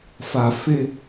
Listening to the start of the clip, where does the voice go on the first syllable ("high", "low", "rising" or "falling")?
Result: low